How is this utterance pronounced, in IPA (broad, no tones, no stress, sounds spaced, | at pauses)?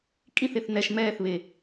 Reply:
kʼ ĩ θ e θ n ɛ ʃ m ɛː θ β e